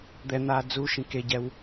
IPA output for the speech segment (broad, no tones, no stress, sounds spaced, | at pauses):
d̪ ɛ n̪ aː d͡z u ʃ ĩ k e ɟ ɛ w